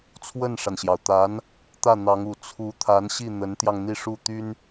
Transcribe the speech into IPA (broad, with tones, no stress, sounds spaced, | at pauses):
t͡sʰ w ə˥˩ n ʂ a˩ n ɕ j ɑ˩ ʊ̯ t̪ a˧˥ n | t̪ ä˥˩ n̪ ɑ˧˥ ŋ u˨˩ t͡sʰ u˧˥ t̪ʰ a˧˥ n ɕ i˥˩ n̪ ə˧˥ n t̪ j ɑ˧ ŋ n̪ i˥˧ ʂ u˥˩ t̪ y˥ n